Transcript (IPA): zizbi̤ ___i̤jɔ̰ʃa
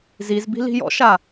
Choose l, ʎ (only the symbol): l